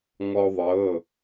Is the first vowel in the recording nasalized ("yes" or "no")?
no